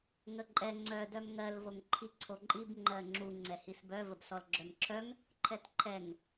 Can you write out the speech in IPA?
ŋəǃʼɛ ŋ͡ǀœ dœmŋɜl voŋǃʰiǀʰoǃʼib ŋ͡ǃɜŋ͡ǁu ŋ͡ǀɛhisbœ vəbsɔlɡ͡ǁœmǁʰœŋ | ǃʰɛtǃʰɛŋ

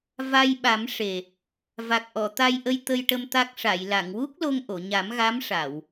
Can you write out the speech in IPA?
va˧j ɓa˨˩˦m ʂe˨˩ | va˨˩k̚ʔɔ˨˩˨t̪a˧jʔə˧j t̪ə˧jʈə˧m t̪a˦˥k̚ ʂa˨˩˨jla˨˩˨ŋ wu˦˥k̚lo˧ŋʔo˨˩˨ɲa˨˩˦m ɣa˧˥mʂa˨˩˨w

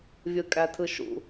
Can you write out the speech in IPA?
vʲɯkʼætʰɯʃṵ

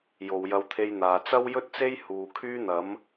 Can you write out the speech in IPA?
jo˨wjɐ˧wt̪ʰe˧jn̪aː˨ t͡sɐ˥wjɵ˥t̚t͡se˥j huː˨kʰyː˥n̪ɐ˨˥m

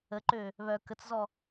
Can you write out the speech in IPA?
əǃø | βœ kət͡szɔ

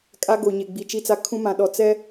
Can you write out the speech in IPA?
kʼa˦ɡo˨ ɲe˨ɡ͡bi˨t͡ʃi˦t͡sa˦ kʰũ˦ mã˨ɗɔ˨ t͡sɛ˦

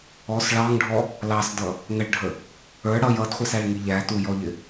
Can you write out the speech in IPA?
ɔs ɭɑŋɖʱɔ | lɑsdʌ | ŋəɭɖʱə | ə˞ ɽʌj ʌdχʷɪsæɭŋi ʎætujɔʎɪ

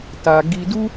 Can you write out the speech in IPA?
ta˧ ɡi˧du˦

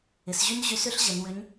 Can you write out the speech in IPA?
ɪ˩˧sʑy˥n ʑy˧˥sʏ˥ɬ ʑə˩˧nwʏ˧˥ɲ

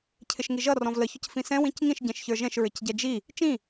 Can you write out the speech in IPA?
cʰɪʃŋiʒʌ rɔ̃vlə çʊcfĩsɛ̃ wĩcŋĩʃ ɟɛ̃ʃçə˞ʒɛ̃ʃ ɹɪcɟɛd͡ʒi | t͡ʃĩ

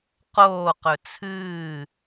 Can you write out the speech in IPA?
qoː qɵt͡sʰɨː

